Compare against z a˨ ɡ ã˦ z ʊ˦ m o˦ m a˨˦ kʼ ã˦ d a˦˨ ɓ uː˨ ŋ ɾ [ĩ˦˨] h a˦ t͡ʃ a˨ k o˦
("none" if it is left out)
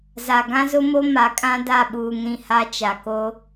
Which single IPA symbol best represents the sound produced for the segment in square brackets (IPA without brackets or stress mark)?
ĩ˦˨